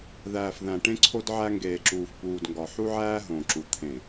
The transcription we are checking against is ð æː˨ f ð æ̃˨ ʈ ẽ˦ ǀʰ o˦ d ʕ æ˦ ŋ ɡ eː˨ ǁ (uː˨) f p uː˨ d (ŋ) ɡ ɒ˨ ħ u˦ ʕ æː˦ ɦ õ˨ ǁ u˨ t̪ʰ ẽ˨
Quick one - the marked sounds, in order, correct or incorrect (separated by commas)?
correct, correct